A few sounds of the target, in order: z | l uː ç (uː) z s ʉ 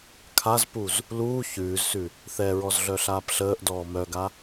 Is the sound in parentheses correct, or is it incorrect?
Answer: incorrect